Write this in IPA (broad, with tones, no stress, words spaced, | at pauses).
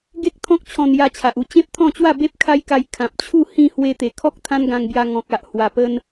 ɡe˦k̚t̪ʰɔ̃˦k̚ t͡ɕʰɔ̃˧nja˧t͡ɕʰa˨ʔ u˧t͡ɕẽ˦p̚t̪ʰɔ̃˥˧t͡ɕwa˥˧ be˦p̚kʰa˦jka˧j kʰã˨p̚t͡ɕʰu˥˧ hĩ˥˧ hwe˧t̪e˨˩kʰɔ˦k̚ t̪ʰã˦nɡã˧ŋbja˧ ŋɔ̃˨k̚a˨ʔ hwa˨˩pə˧n